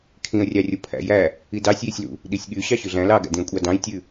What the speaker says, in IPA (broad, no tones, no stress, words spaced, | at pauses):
kʰĩə̯rʲɑrʲo pʰæ̰jæ | idɑsʲjisʲlṵ | ɗisʲɠy ɕɑɕʉɮæ̃ lɑɡæ̰dĩə̯kʷʼɑ dɑ̃j tʲʉ